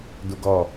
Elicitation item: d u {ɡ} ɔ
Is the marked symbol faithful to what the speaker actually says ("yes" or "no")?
yes